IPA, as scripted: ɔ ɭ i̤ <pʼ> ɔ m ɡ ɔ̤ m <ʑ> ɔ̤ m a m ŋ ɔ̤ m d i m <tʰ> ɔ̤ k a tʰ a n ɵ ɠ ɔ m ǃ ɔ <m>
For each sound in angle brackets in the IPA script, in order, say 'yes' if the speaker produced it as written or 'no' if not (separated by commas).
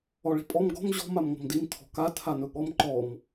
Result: yes, yes, yes, yes